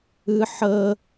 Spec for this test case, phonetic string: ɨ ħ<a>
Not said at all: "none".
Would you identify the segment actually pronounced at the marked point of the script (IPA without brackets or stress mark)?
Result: ə